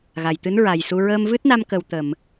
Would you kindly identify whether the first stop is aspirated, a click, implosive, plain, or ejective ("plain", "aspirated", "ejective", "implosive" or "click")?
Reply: plain